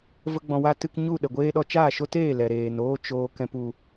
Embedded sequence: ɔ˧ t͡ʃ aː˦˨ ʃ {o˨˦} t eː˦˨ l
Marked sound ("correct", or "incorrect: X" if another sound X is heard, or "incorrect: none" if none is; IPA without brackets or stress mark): incorrect: o˦